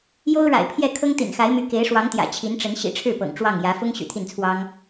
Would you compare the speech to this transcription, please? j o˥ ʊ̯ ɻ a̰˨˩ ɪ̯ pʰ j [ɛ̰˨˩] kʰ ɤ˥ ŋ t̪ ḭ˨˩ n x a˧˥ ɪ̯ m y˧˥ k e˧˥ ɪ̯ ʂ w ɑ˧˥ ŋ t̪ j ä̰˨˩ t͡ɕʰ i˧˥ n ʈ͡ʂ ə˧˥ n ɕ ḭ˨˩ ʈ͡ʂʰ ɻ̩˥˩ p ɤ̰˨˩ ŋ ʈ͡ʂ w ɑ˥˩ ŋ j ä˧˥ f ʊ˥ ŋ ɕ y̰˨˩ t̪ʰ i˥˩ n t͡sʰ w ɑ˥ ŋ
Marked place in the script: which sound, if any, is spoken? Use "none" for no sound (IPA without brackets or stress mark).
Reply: ɛ˥˩